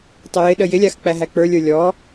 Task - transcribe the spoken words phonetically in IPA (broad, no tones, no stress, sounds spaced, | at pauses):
tˤ ɪ j ɪ ɗ ə j ɪ lʲ a x k͡p æ ɦ æ k͡p ə˞ lʲ ə˞ lʲ ɔ